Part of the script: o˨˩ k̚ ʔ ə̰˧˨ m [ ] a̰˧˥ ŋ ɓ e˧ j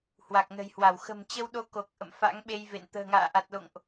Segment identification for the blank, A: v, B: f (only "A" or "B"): B